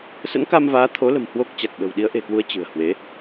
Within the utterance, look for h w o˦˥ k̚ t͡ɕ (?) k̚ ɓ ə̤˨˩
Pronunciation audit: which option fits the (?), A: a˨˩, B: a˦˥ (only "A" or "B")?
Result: A